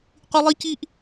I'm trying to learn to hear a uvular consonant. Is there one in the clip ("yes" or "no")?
yes